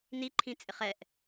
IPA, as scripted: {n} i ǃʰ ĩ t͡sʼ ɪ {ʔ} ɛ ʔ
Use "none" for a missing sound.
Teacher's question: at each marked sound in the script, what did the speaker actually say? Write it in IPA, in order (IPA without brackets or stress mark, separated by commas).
n, χ